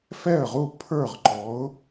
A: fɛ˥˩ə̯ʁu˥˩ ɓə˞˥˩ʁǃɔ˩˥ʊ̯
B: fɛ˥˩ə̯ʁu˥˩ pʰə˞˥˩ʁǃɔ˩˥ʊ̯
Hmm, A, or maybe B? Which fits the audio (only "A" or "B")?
B